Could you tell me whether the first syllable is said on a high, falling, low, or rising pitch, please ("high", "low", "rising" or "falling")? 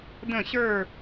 falling